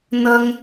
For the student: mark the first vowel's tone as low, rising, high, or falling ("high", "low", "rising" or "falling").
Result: high